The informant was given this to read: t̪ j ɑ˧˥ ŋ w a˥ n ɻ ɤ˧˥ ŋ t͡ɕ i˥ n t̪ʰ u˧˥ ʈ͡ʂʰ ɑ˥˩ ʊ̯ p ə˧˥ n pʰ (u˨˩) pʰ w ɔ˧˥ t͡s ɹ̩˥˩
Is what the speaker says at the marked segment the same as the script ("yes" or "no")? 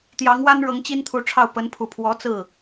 yes